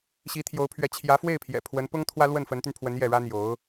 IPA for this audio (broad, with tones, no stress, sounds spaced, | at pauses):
ɕ i˧˥ t̪ʰ j o˧˥ ʊ̯ pʰ ɥ ɛ˧˥ t͡ɕʰ j ä˧˥ f w e˥˩ ɪ̯ pʰ j ɛ̰˨˩ pʰ w ə˧˥ n p ʊ˥ ŋ t̪ʰ w ä˥ l w ə˥˩ n f ə˧˥ n t̪ y˧ n pʰ w ə˧˥ n j ɛ˥˩ ɻ ä˥ n̪ j o˧˥ ʊ̯